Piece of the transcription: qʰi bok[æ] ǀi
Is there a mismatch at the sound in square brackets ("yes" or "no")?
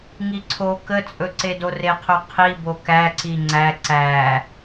no